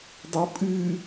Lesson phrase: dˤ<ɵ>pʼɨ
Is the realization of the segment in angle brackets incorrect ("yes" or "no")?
yes